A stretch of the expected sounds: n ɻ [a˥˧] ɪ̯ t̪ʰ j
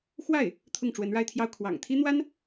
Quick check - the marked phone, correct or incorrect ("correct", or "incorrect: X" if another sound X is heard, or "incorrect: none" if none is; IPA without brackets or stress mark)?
correct